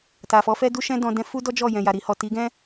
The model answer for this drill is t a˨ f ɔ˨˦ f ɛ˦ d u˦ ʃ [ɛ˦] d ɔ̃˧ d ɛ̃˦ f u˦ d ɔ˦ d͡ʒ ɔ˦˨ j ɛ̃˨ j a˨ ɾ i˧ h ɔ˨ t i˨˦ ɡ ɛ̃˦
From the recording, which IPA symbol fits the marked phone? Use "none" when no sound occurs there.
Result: ɛ̃˦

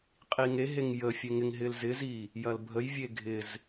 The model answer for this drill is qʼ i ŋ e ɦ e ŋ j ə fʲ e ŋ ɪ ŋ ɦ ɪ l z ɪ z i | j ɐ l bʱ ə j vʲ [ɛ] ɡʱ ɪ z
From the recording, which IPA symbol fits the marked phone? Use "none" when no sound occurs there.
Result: e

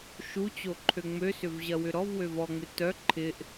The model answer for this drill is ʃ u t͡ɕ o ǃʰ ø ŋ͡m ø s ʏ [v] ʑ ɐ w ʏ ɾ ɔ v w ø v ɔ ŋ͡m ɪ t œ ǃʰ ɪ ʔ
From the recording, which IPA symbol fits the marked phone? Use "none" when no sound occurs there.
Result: v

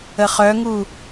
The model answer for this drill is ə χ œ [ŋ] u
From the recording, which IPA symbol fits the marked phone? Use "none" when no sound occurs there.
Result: ŋ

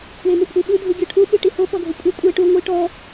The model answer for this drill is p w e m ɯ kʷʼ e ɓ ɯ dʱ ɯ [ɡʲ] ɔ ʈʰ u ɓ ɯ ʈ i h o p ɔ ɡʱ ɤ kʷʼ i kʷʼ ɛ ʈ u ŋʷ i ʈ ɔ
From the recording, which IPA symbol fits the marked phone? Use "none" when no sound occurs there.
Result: ɡʲ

